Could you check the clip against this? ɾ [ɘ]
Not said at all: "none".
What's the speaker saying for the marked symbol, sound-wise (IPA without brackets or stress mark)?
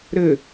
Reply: ɘ